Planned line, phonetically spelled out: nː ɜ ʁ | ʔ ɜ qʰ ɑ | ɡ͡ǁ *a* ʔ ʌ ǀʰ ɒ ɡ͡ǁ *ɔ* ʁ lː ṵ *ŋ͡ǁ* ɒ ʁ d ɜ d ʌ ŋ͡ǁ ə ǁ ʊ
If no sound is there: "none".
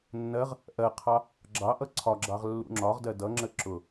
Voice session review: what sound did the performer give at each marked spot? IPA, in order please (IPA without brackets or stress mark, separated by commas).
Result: ɑ, ɑ, ŋ͡ǁ